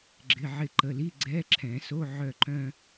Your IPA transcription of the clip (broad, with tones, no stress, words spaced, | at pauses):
ɡ͡ǁɪ˩˧˩ʕɪ˧˩ǃə˩˧˩ li˧˥˧ ɡ͡ǀɛ˧˥˧ǁʰɛ̃˨˩˦so˧˥˧ ʕœ˧ǃœ̃˧